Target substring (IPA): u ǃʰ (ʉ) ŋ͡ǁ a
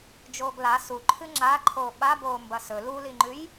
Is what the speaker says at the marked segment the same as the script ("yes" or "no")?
no